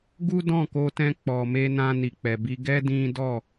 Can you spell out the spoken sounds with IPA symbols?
ɡu˦dɔ̃˦˨ko˧tɛ̃˧ k͡pɔ˨me˧ nã˧ni˨k͡pɛ˨ bi˧ɡɛ˦ dĩ˦ dɔ˦˨

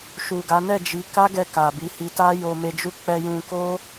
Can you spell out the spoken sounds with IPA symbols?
ʃu˨ɡa˨˦ nɛ˦˨d͡ʒi˨˦ ka˦ɡɛ˧ ka˨bi˨˦hi˧ ta˦jo˧me˧ d͡ʒu˧ k͡pɛ˧ jũ˧ko˦

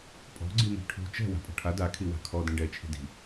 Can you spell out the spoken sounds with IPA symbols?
pʼɔ̤ɡ͡ǀimi̤ ʈʰṳ t͡ʃɛ̤ wa̤pʼɔ̤ʈʰa da kʰiwa̤kʰɔ dĩɖɛt͡ʃʰi̤ di̤

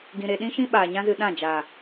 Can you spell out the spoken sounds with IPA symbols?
ɡĩ˧ɾe˧ ɗĩ˦ʃĩ˦ɓaː˨ ɲã˦zɨ˧ ɗã˦˨ d͡ʒaː˨

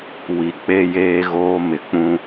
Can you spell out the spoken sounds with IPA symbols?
wi˨k͡pe˦jeː˦ɣoː˦ mɪ˨k͡pũ˦

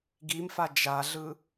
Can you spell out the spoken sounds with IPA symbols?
ɡimfa d͡ʒaɮɯ

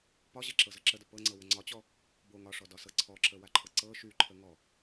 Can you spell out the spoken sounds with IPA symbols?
pɒʑɛǁɤzɤ ǁədə pɤŋ͡ǀɤwə ŋ͡ǀɒt͡ɕɔ | bo ŋɒʂɔdɒsɤ ǀʰɔǁəwaǃʰɤ ǀɤ ʃyǃʰə ŋɔ

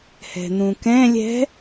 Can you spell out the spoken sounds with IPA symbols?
hɛ̤n̪ũkɛ̃ lʲɛ̤

